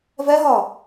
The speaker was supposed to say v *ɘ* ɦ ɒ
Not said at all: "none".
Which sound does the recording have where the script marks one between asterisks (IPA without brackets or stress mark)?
ɛ